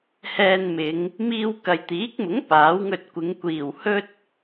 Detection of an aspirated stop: absent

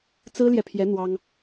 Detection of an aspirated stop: present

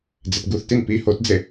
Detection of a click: absent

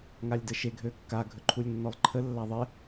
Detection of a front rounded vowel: present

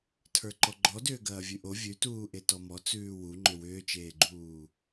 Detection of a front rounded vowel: present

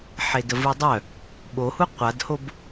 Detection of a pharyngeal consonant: present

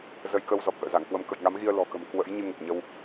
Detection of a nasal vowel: absent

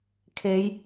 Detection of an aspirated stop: present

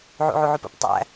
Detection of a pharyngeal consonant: present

